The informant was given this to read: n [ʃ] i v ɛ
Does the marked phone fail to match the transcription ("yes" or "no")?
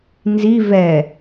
yes